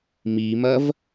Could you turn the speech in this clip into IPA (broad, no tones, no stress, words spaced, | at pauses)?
mimɐv